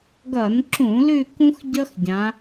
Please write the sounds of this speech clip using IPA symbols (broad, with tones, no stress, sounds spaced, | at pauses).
ɡ ʌ˧˩˧ n ǁ ũ˧˩˧ l ʉ˦˨ k ũ˥ x ɟ ʌ˥ x ɟ ã˨˦